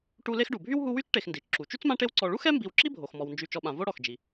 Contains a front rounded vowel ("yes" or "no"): yes